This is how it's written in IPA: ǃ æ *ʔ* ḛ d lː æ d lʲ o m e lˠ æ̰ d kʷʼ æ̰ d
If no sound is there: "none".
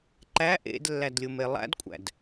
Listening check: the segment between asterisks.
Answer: ʔ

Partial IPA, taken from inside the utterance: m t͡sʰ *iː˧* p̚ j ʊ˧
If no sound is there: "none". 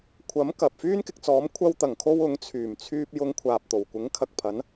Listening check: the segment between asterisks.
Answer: yː˧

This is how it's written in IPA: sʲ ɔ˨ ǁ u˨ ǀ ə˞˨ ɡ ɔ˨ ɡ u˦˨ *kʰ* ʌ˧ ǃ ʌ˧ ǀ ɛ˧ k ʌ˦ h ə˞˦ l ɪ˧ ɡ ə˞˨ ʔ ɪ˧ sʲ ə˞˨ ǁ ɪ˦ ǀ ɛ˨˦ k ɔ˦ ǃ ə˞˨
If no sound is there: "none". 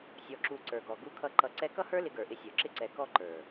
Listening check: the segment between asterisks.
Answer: kʰ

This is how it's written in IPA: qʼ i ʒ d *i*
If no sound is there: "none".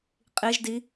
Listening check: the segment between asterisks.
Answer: i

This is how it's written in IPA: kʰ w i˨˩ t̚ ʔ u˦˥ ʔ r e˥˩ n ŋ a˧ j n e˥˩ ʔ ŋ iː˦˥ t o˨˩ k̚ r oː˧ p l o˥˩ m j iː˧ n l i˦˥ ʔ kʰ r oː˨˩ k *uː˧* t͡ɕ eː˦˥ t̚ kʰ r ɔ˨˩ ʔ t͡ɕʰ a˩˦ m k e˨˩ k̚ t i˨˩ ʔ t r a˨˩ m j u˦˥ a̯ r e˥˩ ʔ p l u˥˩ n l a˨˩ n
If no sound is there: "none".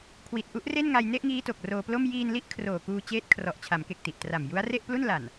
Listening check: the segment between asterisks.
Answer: uː˧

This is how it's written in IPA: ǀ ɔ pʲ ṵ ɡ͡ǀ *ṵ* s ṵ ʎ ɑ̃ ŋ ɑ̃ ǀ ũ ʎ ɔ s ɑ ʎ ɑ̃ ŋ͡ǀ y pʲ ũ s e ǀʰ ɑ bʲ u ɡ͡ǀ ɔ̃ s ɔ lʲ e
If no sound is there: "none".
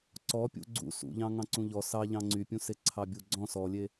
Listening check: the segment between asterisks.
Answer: ṵ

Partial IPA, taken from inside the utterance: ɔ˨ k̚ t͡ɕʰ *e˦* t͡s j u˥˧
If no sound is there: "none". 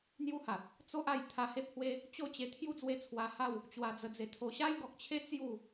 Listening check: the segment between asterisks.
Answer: e˦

